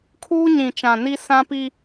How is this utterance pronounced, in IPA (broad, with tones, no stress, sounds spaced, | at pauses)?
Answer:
kʰ uː˦ ɲ ĩ˨ t͡ʃ ã˨ n i˦ s ã˦ p i˦